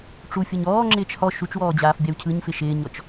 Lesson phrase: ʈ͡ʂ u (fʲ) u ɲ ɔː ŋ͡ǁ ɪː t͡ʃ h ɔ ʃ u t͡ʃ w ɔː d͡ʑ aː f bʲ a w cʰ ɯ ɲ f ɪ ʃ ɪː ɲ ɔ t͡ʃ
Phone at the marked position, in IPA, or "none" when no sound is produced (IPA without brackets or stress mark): fʲ